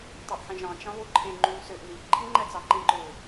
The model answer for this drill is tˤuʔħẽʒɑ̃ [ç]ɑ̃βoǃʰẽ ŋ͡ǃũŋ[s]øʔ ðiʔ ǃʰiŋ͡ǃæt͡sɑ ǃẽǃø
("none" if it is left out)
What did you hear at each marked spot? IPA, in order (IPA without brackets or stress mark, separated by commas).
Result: t͡ʃ, s